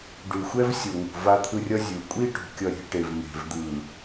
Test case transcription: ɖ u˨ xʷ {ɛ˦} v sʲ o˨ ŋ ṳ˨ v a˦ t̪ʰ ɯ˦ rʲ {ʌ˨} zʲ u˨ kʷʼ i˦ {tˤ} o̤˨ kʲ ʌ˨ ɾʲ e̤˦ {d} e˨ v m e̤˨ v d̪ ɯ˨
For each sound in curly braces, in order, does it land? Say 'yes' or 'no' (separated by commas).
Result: yes, no, no, no